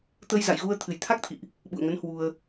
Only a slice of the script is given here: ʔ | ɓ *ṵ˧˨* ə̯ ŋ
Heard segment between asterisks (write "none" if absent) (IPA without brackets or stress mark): ṵ˧˨